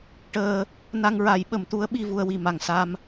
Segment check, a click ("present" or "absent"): absent